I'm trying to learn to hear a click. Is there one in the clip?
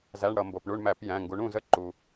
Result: yes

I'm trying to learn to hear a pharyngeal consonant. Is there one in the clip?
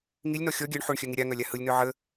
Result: yes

